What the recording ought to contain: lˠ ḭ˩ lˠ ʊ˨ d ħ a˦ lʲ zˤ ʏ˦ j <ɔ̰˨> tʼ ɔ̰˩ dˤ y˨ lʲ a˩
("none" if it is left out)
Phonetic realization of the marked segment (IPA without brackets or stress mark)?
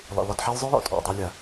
ɔ̰˨